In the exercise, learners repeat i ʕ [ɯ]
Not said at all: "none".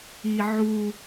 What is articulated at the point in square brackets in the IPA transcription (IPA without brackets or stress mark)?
u